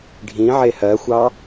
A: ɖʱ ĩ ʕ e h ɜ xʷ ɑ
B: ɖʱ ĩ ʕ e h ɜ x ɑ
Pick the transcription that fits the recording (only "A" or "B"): A